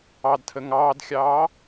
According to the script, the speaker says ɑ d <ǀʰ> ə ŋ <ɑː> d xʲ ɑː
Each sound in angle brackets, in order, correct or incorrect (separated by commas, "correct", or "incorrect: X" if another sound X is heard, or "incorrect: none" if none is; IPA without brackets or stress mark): incorrect: tʰ, correct